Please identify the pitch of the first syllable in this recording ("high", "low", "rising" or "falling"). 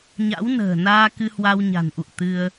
rising